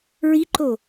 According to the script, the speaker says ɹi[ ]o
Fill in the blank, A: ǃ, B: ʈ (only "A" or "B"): A